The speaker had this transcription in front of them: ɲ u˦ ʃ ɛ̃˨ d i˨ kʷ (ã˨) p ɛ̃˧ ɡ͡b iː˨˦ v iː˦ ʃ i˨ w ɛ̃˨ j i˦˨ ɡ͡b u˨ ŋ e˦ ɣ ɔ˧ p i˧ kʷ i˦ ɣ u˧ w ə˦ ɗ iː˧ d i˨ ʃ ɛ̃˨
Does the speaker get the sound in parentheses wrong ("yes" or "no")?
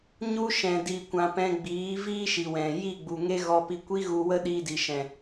no